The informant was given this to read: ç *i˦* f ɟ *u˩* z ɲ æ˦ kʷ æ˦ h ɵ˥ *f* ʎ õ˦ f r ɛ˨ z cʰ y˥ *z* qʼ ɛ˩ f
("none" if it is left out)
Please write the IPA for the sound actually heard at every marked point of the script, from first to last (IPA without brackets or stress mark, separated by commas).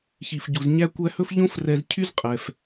i˩, u˩, f, z